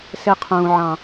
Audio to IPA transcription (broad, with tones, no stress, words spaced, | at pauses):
se˧qʰũː˨ʕɑ̃˨